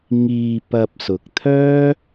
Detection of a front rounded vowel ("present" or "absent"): present